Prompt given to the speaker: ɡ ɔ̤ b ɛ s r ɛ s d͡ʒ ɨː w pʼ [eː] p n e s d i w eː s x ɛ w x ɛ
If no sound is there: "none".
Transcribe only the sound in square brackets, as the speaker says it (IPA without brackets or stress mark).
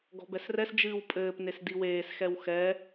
ɘː